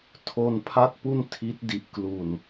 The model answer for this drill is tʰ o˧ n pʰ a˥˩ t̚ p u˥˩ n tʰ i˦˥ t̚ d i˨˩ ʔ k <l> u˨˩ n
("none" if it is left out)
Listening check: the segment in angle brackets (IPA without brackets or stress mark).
l